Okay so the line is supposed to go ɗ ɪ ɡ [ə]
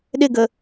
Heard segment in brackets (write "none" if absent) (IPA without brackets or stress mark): ə